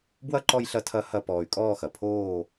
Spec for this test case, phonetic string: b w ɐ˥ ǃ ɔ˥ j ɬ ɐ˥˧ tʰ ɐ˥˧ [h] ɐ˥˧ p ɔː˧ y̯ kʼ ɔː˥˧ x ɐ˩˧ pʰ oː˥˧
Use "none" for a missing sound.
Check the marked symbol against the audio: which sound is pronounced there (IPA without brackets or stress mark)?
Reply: h